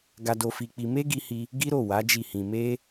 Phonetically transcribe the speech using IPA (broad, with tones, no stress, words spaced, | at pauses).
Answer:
ɡa˧do˧fi˧k͡pi˧ me˦ɡi˧hi˧ | ɡi˦ɾo˦˨wa˨˦ d͡ʒi˦˨hĩ˧ me˦